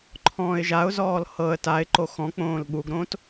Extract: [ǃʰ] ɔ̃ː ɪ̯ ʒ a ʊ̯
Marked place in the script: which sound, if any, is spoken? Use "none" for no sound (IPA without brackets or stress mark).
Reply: ǃʰ